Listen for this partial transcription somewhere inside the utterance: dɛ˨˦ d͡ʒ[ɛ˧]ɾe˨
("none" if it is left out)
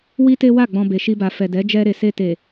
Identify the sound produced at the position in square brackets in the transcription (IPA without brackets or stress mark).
ɛ˧